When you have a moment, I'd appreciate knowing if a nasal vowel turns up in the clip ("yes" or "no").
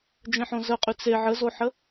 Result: yes